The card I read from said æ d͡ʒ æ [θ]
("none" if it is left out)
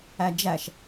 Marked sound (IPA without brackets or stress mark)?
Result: ʃ